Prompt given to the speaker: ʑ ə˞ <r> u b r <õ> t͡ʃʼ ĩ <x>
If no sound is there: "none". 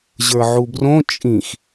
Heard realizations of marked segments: ʕ, õ, x

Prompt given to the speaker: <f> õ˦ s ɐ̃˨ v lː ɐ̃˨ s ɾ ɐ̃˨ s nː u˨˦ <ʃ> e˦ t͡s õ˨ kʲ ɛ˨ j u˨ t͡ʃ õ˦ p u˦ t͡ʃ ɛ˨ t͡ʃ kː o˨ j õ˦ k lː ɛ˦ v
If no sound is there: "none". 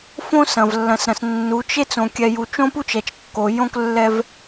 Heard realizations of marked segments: f, t͡ʃ

